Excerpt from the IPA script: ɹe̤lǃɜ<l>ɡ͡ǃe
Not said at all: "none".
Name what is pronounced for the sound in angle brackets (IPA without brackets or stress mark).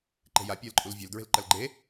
l